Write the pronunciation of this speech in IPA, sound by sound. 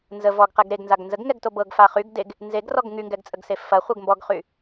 n z ə v ɔ ɡ q ɛ ɡ ɾ e ɡ n z a ɡ n z ə ɡ ŋ ɛ ɡ t o b ɤ ɡ f a χ y ɡ d e ɡ | n z e ɡ r ɔ ɡ ŋ y ŋ ɡ ɛ ɡ t͡sʼ ə ɡ s e f ɐ χʷ ɛ ɡ m b ɔ ɡ χ y

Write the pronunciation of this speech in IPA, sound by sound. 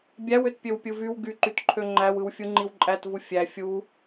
bʲ æ w ø t pʲ ø w pʲ ɯ v y w ɡ y ǃ y t ǃʰ ø ŋ͡ǃ æ w ɯ w fʲ u ŋ͡ǃ i w ǃʼ æ t v u fʲ æ fʲ u

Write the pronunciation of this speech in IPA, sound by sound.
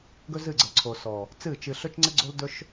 ɡ ɵ˦ z ɨ˦˨ ɡ͡ǀ ə˨ l ǀʰ o˨ s ɔ˨ | t͡s ɨ˦˨ t͡ʃ ɨ˧ ɬ ɵ˦ t͡ʃ ŋ͡ǀ ə˦ ɡ͡ǀ o˦ l d ɵ˦ ʃ

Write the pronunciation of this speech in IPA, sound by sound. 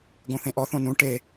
ɡ õ θ ẽ ʔ ɔ θ õ n ũ ʈ e

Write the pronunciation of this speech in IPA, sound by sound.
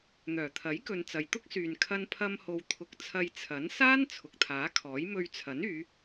n̪ œː˨˩ t̪ʰ ɐ˨˥ j k ɵ˨ n t͡s ɐ˨ j t̪ ʊ˥ k̚ s yː˨ n kʰ ɐ˧ n pʰ ɐ˧ m h o˨ w t̪ʰ ʊ˧ k̚ t͡sʰ ɐ˧ j t͡sʰ ɐ˨˥ n s aː˥ n t͡sʰ ʊ˨ k̚ t̪ʰ aː˨˥ kʰ ɔː˨˥ j m ɵ˧ ɥ t͡sʰ ɐ˨˥ n yː˨˧

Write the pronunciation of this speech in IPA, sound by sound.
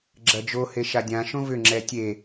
ɡ͡ǁ ɐ d͡ʒ o h e ʃ a dʲ ã ʃ õ v ʏ ŋ͡ǁ ɛ tʲ e

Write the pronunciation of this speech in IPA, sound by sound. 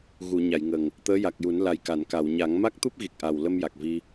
ɣ u˨˩˨ ɲ a˨˩˨ j ŋ ə˨˩ ŋ | t̪ əː˧˥ j a˨˩ k̚ j u˨˩˦ n l a˨˩ j k a˨˩˨ n k a˨˩˨ w ɲ a˨˩˦ ŋ m a˦˥ k̚ t̪ u˦˥ p̚ ɣ i˨˩ k̚ ʔ a˨˩ w l ə˧ m j a˨˩ k̚ v i˧

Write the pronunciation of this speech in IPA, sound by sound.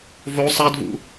v o sˤ a d v ṵ

